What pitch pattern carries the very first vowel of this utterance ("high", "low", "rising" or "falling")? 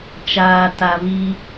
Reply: low